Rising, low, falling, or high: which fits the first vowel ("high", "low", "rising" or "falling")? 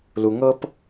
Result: low